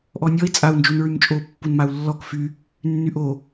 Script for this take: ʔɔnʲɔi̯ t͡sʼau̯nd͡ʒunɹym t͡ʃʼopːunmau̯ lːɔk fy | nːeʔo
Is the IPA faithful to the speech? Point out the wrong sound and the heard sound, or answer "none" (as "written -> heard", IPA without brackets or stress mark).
e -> y